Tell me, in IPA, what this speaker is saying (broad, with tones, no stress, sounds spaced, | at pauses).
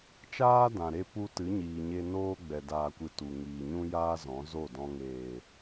t͡ʃ aː˦ d ã˨ ɾ e˦ p u˧ t ɨ˨˦ ɲ iː˨ ɲ e˧ n oː˦ ɡ͡b ɛ˨ d aː˨ kʷ ɨ˨ t u˨ ŋ iː˨ ɲ ũ˦ j aː˦ z ɔ̃˨˦ z o˦˨ d ɔ̃˧ ŋ eː˨